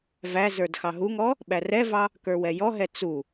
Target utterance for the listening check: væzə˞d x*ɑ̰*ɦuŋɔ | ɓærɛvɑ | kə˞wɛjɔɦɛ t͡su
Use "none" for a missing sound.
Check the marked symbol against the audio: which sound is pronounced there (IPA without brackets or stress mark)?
ɑ